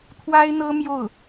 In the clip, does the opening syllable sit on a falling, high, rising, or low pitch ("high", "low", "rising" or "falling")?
high